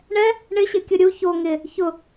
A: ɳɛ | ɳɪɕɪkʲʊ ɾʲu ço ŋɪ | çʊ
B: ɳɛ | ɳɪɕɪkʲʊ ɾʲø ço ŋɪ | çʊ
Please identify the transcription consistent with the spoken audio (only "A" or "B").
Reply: A